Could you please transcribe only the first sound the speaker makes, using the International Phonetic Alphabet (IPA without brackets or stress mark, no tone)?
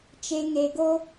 t͡ʃ